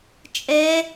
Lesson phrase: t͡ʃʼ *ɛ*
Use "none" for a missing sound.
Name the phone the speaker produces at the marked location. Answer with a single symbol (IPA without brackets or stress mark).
ɛ